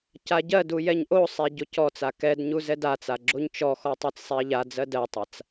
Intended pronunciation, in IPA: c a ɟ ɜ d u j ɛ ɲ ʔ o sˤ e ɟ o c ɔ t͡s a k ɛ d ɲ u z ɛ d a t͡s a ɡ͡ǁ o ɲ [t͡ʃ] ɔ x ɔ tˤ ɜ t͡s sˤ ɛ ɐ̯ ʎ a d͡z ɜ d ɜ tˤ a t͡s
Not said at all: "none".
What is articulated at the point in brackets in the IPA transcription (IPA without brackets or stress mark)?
t͡ʃ